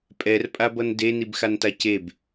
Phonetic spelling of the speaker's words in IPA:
pʼ ɛ r pʼ a b ʌ n d e n i b x a n t a c e b

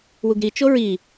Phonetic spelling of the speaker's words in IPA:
w u ɡ ɾ i t͡ʃ o ɹ i

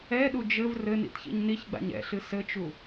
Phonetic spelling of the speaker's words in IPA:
ɛ ɗ u d͡ʒ ɘ v r ɘ n ḭ t ç ḭ ɲ n i ç ɡ͡b a̰ ɲ ɛ̰ ɬ ɨ s ɘ t͡ʃ u

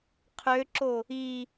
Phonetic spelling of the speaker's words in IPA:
qʰ ø ǁ o | i

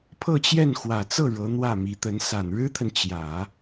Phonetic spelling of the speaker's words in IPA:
pʰ ɤ˥˧ t͡ɕ j ɛ˥˩ n x w ä˨˩ t͡s ɤ˥˩ ɻ ɤ˧˥ n̪ w ä˥˩ m i˧˥ t̪ ə˧˥ n s a˨˩ n ɻ ɻ̩˥ t̪ʰ ə˨ n t͡ɕ j ä˨˩˦

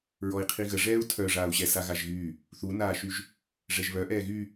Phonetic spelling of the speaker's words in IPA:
ɹ ɔ i̯ qʰ i ɣ ə ʐ ɛː u̯ tʰ œ ʐ aː u̯ ɕ ɛ s a ɣ a ʒ ɣ yː | θ u n aː ʃ y ʒ | ʐ ɛ ʒ β œ ʔ ɛː ɣ y

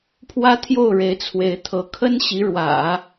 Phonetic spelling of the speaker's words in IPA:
pʰ w ä˥ t̪ʰ j o˥˩ ʊ̯ ɻ e˧˥ ɪ̯ t͡sʰ w e˧˥ ɪ̯ t̪ʰ ɤ˧˥ kʰ ə˥ n ɕ i˧˥ ɻ w ä̰˨˩˦

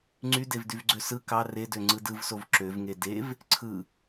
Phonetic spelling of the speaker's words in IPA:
ŋ͡ǀ y d e v d y v ɡ͡ǀ ø s ɯ k ɑ r e d ø ŋ͡ǀ ɯ d ɯ v s o v ǁ ø v ŋ e d e v | ǀʰ ɯ

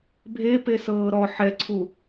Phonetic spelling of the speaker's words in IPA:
bʱ e p e s ɤː ɾ ɔ ħ ɛ ǀʰ u

